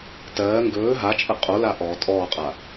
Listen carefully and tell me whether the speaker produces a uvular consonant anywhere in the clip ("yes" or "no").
yes